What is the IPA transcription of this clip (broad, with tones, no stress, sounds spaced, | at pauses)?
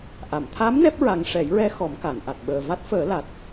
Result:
ʔ a˨˩˨ m t̪ʰ a˧˥ m n ɛ˦˥ p̚ ɹ a˨˩ ŋ ʂ ɛ˨˩˦ j ɹ ɛ˧ x ɔ˨˩˦ m k a˨˩˨ n ʔ a˨˩ t̚ ɓ əː˨˩ v a˦˥ t̚ f əː˨˩˦ l a˨˩ t̚